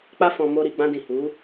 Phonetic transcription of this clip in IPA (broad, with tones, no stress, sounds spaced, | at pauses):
k͡p a˧ f ɔ̃˨ m o˧ ɾ i˨ ɡ͡b ã˧ d ĩ˨ h u˨˦